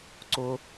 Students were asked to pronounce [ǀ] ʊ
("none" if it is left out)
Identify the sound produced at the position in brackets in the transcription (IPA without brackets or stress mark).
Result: ǀ